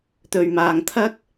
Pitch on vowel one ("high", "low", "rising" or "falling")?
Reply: low